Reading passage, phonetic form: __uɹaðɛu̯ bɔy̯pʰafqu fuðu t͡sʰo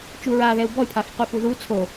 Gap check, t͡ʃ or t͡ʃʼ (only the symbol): t͡ʃ